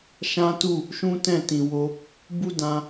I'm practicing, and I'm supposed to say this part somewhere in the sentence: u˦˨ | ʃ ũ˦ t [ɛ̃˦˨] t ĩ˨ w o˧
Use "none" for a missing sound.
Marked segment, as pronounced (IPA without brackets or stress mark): ɛ̃˦˨